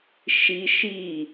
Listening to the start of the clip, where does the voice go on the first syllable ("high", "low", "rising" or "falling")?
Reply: high